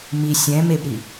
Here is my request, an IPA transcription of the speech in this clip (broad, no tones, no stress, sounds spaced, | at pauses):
m i sʲ ɛ̃ m e b ɾ i